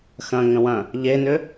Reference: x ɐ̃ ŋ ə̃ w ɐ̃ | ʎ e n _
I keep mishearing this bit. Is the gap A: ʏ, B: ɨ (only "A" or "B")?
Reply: A